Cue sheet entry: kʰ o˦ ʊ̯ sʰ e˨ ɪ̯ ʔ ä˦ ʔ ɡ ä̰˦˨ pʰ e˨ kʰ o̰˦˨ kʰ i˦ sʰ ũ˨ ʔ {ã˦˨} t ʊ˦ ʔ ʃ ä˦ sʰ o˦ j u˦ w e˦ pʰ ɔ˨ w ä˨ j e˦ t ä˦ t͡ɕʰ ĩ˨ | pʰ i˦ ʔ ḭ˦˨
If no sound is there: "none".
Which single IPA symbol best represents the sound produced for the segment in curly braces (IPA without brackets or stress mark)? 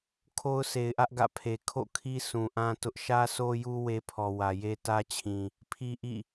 ã˦